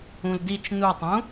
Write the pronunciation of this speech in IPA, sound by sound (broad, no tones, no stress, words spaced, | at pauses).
ũldit͡ʃ nutˤũ